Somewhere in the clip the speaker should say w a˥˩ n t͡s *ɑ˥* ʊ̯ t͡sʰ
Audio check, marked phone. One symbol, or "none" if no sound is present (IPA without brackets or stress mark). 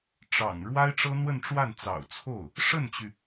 ɑ̰˨˩